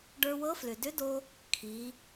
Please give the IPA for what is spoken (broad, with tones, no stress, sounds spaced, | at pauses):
ɖ ə˞˧ w ɤ˧˥ f l ʏ˩ d ʏ˧˥ d o˧ | kʰ i˩˧